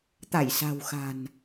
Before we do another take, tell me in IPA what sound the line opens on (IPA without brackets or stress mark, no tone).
t̪